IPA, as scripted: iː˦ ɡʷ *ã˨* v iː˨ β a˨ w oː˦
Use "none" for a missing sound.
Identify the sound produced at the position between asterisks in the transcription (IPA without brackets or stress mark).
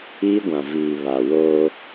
ã˨